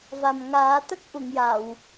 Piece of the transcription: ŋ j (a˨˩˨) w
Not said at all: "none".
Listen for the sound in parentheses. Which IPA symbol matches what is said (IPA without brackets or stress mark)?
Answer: a˨˩˨